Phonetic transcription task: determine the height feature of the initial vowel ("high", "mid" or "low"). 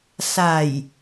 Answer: low